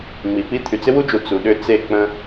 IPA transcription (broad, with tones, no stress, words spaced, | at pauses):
ŋ͡mi˨pi˦ t̪ʰy˨t͡sɪ˦wu˦d͡ʒu˨ t͡su˨ɗʏ˦ t͡se˦˨k͡pə̃˦